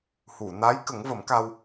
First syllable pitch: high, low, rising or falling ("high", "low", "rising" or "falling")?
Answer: low